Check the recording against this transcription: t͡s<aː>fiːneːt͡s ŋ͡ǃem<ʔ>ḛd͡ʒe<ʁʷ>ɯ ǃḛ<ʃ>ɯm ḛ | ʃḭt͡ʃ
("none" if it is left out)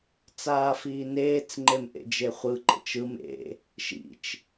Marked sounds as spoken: aː, ʔ, χʷ, t͡ʃ

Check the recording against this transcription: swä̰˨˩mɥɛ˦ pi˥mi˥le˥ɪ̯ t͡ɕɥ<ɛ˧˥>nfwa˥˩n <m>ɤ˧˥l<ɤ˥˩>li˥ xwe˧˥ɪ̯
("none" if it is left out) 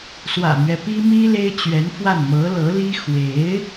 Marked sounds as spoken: ɛ˧˥, m, ɤ˧˥

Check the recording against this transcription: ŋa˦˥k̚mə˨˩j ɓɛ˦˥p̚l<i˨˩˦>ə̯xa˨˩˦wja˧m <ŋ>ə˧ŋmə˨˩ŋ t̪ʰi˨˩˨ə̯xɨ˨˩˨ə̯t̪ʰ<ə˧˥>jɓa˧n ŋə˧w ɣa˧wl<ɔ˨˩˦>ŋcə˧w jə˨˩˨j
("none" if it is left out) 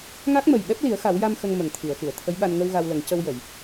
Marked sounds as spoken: i˨˩˦, x, ə˧˥, ə˨˩˦

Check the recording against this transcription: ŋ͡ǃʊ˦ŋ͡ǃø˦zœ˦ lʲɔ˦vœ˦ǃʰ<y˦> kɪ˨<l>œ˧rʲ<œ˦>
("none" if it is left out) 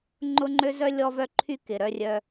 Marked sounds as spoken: y˦, ɾ, œ˧

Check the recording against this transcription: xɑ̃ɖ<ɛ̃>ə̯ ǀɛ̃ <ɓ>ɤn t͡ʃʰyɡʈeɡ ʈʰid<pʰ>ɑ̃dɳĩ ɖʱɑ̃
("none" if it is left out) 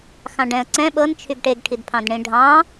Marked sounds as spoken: ɛ̃, ɓ, pʰ

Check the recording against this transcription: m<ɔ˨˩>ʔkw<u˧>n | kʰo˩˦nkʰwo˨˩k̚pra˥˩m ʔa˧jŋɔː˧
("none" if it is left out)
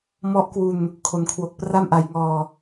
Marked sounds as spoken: ɔ˦˥, u˧

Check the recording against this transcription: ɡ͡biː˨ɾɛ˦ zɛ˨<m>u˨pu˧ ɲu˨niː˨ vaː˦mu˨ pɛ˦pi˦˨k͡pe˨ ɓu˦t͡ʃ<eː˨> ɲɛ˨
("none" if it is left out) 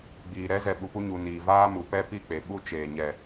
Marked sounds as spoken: ɓ, eː˨

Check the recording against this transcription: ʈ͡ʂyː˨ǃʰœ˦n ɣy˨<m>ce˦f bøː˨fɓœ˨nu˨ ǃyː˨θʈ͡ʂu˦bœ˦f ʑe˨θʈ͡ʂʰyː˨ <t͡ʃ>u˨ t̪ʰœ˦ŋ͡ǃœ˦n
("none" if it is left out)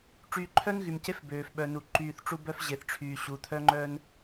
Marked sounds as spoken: m, ɕ

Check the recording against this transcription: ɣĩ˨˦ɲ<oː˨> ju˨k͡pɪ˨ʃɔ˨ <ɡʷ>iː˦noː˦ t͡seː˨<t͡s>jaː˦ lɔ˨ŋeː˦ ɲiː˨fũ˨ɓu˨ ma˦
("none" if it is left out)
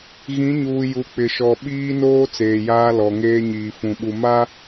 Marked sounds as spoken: uː˨, ɓ, none

